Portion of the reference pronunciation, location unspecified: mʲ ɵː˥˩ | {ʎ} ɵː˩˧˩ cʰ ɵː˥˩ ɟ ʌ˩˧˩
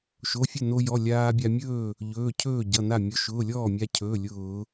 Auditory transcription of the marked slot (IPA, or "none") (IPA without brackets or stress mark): ʎ